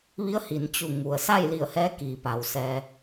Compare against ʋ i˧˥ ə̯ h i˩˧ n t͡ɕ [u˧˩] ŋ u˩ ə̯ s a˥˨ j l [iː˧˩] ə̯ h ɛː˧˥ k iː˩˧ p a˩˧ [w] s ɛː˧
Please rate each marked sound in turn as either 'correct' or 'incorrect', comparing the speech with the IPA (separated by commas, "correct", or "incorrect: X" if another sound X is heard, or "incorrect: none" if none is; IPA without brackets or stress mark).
correct, incorrect: i˧˩, correct